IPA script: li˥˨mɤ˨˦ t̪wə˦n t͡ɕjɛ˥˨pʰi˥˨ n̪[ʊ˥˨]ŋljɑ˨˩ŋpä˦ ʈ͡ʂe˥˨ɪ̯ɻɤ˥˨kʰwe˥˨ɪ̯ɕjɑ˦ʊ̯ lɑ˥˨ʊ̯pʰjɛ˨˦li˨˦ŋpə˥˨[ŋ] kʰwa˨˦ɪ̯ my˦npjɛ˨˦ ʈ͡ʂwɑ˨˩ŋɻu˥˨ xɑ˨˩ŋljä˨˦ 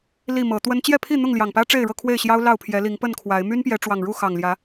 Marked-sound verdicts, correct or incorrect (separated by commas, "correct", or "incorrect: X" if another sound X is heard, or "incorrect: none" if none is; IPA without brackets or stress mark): correct, incorrect: n